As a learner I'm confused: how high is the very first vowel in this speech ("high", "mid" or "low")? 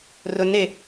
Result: high